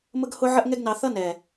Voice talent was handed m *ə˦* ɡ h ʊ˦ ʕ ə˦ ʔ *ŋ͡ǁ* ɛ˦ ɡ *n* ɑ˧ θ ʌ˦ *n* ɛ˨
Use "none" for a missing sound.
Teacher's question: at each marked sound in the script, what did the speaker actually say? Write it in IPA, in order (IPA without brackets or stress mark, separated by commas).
ə˦, ŋ, n, n